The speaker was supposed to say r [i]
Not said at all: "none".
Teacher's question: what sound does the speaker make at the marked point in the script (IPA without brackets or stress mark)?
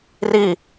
i